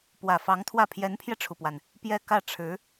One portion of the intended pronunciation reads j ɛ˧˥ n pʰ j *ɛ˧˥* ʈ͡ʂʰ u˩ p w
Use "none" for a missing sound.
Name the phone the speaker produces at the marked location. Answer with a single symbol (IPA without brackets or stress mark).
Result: ɛ˧